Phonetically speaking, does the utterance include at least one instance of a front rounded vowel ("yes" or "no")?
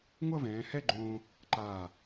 no